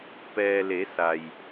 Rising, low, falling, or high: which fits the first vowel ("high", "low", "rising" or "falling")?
low